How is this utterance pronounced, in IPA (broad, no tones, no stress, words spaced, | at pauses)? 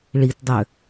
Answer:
ɭitdˤø